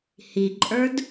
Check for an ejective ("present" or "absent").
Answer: present